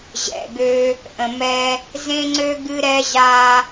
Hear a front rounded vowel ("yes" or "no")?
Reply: yes